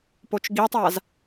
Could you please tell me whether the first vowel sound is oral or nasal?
oral